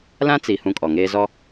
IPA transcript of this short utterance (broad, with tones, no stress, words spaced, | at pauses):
lã˦t͡si˨ hũ˦kʼɔ˨ŋeː˦zɔ˦